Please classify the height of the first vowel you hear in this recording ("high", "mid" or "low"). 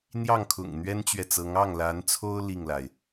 low